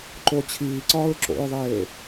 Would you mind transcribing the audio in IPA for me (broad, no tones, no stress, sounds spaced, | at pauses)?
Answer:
ǃ o t͡ɕʰ iː ǀ ɒː ɹ ǁ o̰ ɹ ðˤ eː